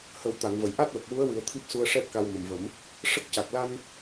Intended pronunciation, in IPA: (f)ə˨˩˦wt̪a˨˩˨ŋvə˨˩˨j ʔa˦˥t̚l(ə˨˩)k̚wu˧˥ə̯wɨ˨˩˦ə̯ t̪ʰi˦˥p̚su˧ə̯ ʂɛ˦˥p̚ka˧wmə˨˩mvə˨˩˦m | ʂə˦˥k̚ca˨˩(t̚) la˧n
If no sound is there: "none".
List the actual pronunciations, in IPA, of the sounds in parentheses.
h, ə˨˩, k̚

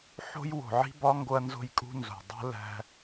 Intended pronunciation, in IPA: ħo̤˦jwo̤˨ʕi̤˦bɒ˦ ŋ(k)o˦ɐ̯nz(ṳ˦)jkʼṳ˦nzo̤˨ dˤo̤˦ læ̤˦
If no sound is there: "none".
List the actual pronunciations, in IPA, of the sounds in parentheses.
ɡ, o̤˦

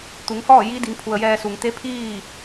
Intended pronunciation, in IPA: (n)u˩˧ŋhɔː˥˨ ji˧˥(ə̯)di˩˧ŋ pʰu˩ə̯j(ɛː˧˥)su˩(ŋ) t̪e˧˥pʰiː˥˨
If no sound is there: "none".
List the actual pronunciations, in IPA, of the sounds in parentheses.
t̪, none, ɛː˧, ŋ

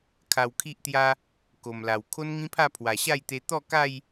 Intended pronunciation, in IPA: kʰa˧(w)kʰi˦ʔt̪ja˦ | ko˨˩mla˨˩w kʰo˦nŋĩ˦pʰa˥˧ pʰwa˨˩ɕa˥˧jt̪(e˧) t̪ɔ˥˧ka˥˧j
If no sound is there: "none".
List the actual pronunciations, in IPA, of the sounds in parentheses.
w, e˧

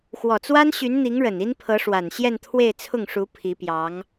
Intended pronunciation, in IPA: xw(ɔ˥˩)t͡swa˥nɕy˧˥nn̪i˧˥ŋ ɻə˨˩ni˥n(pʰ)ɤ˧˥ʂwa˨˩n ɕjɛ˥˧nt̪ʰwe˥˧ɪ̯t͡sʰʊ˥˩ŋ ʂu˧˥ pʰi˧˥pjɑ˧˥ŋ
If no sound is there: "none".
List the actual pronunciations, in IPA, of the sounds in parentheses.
ɔ˨˩, pʰ

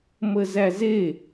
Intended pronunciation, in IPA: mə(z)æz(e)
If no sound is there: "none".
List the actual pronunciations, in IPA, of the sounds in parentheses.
z, e

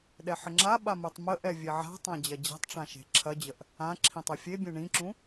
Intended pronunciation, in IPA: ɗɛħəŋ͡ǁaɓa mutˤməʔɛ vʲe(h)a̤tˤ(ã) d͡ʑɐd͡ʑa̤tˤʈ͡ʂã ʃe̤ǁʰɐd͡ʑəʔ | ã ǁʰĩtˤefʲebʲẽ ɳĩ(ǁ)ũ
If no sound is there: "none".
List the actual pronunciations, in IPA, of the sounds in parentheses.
ʕ, ã, ǁ

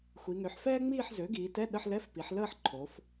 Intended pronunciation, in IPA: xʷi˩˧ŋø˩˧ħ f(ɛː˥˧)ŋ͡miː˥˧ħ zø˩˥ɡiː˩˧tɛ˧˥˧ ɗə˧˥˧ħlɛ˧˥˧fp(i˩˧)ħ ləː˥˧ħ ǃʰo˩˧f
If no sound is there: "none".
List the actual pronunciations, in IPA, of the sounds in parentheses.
ɛː˥, i˩˧

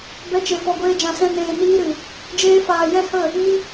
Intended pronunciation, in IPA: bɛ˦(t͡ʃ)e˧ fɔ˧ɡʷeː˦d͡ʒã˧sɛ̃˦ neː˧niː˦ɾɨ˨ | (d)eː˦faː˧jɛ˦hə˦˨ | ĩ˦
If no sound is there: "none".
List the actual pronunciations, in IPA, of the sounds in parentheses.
t͡ʃ, d͡ʒ

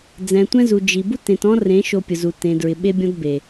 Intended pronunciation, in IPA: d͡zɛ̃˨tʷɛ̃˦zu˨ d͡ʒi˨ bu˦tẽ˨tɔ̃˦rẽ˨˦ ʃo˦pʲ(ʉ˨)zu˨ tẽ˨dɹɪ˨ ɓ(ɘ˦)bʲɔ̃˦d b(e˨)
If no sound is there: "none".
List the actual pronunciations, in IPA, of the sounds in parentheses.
ʊ˨, e˦, e˨

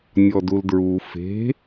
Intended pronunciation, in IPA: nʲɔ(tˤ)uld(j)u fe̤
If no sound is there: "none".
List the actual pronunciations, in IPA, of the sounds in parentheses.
d, ɹ

